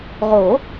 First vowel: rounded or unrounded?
rounded